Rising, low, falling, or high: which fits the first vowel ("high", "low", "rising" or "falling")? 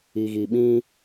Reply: low